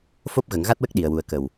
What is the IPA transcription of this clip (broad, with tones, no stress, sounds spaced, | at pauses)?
f o˦˥ p̚ ɣ ə˨˩˦ ŋ ɣ a˦˥ t̚ w ə˦˥ k̚ ɗ i˨˩ ə̯ w u˨˩ ə̯ k ə˨˩ w